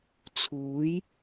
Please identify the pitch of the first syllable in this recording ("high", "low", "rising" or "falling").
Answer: rising